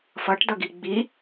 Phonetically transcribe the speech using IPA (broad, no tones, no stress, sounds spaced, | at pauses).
f ʌ ʈ d ʌ ɡ i ɡ͡b i